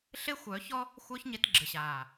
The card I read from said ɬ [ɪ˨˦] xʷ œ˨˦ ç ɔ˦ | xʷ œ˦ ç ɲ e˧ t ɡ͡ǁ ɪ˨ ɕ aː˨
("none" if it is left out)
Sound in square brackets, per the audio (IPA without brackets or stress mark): ɪ˦